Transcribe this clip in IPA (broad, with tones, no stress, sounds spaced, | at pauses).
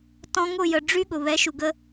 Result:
t ɔ̃˧ ŋ ʊ˦˨ j ə˨ ɖ͡ʐ y˦ ɠ ʊ˨ β ɛ˨˦ ʃ u˨ ɡ ə˧